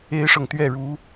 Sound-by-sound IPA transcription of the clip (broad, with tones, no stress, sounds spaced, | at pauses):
e˥ ɪ̯ ʂ ɤ˨ ŋ t̪ ɥ ɛ˥˩ ɻ u˧˥